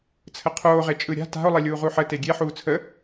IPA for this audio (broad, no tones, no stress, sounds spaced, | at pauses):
t͡sʰ ə qʰ oː ʁ e t͡ʃʼ ɯ ɾʲ a̤ t a̤ o̯ lˠ e lʲ uː ʁ u ħ ə t e ɡʲ e ħ uː t͡sʰ ə